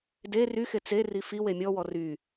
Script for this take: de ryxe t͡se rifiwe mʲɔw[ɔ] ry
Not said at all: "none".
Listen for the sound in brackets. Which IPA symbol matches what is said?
ɔ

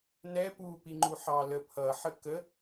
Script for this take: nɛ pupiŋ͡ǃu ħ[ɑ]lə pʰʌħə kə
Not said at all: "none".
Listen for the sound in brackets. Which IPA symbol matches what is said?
ɑ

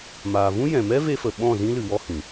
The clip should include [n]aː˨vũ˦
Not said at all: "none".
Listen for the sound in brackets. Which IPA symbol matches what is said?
m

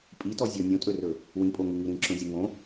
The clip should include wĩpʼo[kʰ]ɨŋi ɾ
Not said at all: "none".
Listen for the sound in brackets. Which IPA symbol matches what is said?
ŋ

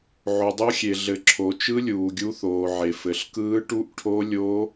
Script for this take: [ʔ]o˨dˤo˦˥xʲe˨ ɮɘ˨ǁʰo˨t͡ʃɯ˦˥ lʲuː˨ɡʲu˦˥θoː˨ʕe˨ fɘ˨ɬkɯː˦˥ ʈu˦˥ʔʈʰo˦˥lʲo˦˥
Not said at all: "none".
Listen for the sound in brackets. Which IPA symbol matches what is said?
ʕ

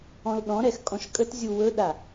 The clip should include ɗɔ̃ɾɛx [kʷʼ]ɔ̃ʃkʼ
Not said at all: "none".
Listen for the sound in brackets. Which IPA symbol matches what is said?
kʼ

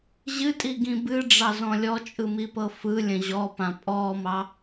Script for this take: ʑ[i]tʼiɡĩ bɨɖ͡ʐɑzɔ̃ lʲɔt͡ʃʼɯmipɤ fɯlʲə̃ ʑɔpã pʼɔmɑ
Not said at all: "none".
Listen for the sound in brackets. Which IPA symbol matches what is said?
ɨ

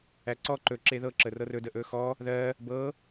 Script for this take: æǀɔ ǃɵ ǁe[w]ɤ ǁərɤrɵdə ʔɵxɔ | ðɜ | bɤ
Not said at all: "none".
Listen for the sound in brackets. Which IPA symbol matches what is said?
ð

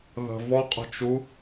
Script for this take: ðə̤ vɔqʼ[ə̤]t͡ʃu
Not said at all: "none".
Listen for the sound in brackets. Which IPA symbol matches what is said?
ə̤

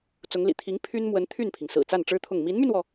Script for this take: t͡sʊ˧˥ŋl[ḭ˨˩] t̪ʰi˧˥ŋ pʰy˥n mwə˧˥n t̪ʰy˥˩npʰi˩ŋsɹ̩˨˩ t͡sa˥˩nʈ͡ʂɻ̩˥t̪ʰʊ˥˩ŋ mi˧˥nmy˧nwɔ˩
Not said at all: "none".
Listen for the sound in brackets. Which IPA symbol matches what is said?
ḭ˨˩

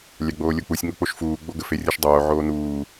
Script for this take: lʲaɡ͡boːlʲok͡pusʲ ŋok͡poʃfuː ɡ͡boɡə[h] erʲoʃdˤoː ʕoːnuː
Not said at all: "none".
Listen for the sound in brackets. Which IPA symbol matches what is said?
f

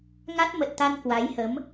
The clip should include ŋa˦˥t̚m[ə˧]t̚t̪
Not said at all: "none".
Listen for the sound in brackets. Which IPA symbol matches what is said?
ə˨˩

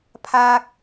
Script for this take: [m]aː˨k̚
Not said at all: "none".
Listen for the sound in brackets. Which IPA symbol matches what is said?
pʰ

